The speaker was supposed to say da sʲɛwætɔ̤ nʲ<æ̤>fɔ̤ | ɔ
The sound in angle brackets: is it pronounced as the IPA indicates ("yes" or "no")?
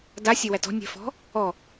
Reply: yes